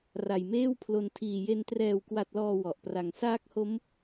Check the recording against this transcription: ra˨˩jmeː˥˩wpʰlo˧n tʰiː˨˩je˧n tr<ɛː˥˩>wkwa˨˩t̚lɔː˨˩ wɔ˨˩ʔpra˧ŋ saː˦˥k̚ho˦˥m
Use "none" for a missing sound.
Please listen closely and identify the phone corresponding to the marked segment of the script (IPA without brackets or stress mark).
ɛː˨˩